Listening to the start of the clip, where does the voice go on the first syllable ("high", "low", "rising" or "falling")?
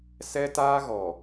high